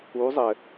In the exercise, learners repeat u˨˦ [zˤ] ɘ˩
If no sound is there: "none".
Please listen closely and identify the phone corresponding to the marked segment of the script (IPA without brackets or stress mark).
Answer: zˤ